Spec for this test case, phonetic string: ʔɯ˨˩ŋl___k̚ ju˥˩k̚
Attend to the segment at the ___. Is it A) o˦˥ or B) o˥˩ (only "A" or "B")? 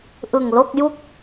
B